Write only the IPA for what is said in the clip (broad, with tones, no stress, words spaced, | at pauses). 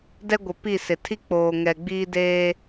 dɛ˦ɡʷɪ˨ pi˦˨sɪ˨ tʰi˦k͡poː˨ŋɛ˨ɡ͡biː˦ deː˦